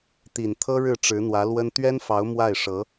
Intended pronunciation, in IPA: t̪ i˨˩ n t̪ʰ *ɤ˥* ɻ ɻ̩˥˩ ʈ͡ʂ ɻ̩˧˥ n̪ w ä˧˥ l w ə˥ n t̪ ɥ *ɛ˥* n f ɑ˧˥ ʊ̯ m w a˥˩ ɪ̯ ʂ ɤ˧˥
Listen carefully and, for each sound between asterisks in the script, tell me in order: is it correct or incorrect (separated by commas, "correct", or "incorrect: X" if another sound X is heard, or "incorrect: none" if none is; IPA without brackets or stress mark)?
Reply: correct, correct